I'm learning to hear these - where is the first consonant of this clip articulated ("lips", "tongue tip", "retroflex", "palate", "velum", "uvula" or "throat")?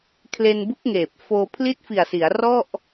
velum